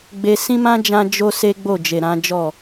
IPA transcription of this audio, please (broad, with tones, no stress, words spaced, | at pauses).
ɡ͡be˧ sĩ˦mã˦ d͡ʒã˦ d͡ʒo˦se˦ ɡ͡bo˦˨d͡ʒe˨ɾã˨˦d͡ʒɔ˦˨